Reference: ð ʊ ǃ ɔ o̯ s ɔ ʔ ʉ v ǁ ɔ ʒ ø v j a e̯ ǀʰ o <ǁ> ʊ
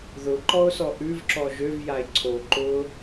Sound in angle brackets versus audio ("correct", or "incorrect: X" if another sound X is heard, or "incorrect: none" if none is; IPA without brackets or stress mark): incorrect: ǃ